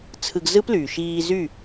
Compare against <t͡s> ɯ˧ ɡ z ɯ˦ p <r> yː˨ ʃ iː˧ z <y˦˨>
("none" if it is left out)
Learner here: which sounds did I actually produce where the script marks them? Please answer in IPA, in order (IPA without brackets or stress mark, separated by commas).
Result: t͡sʰ, l, y˦˨